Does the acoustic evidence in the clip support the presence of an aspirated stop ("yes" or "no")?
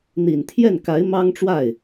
yes